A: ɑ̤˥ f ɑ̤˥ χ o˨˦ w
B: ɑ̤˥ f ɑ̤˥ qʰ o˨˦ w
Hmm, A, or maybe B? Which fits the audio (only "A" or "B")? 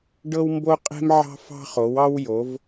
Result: A